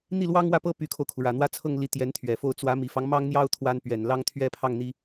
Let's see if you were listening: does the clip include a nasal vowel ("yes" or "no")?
no